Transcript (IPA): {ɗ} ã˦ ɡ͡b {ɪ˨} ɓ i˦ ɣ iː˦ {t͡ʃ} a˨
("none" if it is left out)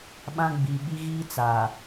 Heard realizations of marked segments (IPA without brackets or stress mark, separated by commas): ɓ, i˨, t͡s